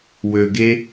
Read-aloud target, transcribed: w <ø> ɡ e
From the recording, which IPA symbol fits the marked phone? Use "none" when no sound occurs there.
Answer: ø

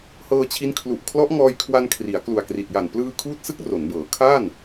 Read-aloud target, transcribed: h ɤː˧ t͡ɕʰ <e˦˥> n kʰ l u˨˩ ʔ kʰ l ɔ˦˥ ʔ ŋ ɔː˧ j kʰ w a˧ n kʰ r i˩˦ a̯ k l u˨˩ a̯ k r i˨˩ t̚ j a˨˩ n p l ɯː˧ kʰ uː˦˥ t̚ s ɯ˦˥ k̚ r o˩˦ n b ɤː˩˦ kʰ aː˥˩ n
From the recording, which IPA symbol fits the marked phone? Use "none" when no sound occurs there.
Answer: i˦˥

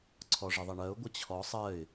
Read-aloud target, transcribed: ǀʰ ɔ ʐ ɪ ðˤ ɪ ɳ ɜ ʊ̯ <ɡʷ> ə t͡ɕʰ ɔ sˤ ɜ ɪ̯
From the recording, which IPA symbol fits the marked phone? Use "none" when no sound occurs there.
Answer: ɡʷ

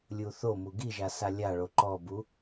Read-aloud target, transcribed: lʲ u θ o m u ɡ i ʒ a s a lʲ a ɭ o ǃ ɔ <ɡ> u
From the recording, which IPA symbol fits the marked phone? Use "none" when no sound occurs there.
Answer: b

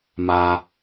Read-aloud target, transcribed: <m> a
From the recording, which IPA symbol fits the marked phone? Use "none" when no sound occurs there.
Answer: m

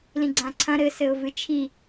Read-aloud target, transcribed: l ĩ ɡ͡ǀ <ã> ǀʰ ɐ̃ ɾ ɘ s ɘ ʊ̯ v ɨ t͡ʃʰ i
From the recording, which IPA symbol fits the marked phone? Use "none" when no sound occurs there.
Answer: ã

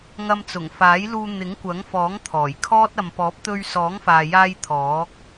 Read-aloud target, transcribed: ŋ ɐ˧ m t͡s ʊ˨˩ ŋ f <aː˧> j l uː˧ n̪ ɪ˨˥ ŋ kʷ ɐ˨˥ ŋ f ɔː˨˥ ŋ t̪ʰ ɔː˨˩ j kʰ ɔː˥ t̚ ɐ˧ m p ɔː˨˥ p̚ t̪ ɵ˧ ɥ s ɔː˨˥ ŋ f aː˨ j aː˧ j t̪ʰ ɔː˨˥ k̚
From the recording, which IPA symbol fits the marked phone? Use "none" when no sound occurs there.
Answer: aː˨˥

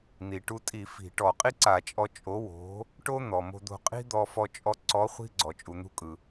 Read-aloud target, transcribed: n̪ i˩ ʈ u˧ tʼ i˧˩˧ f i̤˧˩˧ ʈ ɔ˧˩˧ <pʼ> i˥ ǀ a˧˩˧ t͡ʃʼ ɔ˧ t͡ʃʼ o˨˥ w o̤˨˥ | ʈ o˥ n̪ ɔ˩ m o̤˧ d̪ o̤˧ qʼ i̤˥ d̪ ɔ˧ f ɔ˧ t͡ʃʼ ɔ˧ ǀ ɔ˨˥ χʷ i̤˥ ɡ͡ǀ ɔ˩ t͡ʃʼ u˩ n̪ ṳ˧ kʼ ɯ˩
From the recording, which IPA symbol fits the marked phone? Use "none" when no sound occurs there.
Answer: qʼ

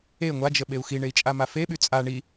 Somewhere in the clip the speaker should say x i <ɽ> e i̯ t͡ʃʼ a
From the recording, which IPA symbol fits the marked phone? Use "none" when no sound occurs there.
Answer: ɳ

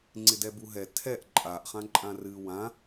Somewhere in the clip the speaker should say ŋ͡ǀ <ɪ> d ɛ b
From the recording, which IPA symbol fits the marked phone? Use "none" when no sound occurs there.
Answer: ɪ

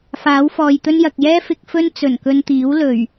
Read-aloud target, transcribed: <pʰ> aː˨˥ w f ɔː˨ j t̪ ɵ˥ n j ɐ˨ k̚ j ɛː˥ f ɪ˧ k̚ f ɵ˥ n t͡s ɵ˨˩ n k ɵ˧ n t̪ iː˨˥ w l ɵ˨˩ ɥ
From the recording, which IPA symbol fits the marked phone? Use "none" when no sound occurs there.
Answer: f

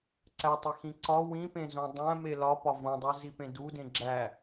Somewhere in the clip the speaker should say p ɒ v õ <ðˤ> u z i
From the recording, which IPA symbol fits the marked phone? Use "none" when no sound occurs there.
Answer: dˤ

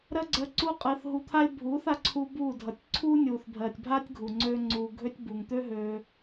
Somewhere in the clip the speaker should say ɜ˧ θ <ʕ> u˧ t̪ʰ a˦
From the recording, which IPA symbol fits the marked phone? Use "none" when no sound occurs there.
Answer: ɦ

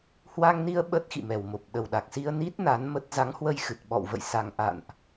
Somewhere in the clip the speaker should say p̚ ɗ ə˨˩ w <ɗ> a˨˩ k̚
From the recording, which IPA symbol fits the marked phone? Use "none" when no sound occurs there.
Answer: ɗ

